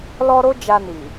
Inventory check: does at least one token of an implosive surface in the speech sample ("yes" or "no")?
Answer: no